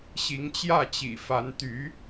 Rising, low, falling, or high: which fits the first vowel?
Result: rising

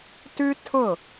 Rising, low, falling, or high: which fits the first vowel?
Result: high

